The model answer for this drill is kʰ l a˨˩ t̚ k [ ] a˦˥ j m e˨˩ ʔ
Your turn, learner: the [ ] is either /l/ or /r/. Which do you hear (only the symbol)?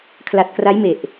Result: r